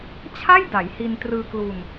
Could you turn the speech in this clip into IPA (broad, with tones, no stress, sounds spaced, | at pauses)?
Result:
t͡ɕʰ a˥˩ j d a˩˦ j h i˧ n t r ɯː˧ k l u˧ n